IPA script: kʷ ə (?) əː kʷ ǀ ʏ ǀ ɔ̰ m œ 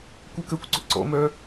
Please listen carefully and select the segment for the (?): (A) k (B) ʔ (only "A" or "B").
A